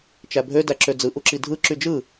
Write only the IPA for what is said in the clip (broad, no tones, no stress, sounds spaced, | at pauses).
t͡ʃ æ bʱ ø d æ ǁ ø d͡z ɯ ʔ u ǁ i dʱ ɯ ǁ y d͡ʒ ɯ